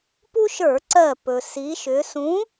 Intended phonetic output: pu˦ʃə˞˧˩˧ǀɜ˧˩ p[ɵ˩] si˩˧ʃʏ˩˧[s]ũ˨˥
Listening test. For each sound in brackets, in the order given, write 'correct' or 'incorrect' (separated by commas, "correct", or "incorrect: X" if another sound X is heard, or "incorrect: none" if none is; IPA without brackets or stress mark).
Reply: correct, correct